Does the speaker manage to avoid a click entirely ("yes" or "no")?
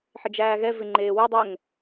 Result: no